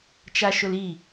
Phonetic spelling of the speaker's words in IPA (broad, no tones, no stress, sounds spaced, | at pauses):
t͡ʃ a ʃ ʊ l i